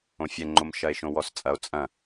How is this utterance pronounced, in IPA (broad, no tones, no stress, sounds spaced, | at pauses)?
õ fʲ ɛ ŋ͡ǃ o m ʃ ɐ e̯ ʃ õ w ɔ s t͡sʼ ɐ o̯ t͡sʼ ɐ̃